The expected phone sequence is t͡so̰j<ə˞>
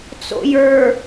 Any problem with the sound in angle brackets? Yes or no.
no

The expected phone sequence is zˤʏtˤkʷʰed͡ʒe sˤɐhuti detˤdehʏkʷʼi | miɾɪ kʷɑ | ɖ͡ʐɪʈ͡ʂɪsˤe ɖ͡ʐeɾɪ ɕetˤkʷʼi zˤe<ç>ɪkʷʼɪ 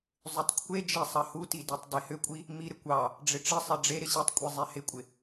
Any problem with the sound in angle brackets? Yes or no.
yes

